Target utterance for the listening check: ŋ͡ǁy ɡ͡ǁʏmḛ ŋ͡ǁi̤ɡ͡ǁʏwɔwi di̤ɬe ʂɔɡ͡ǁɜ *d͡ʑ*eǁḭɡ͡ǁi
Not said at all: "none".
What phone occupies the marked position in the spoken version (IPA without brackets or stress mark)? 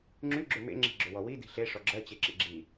t͡ɕ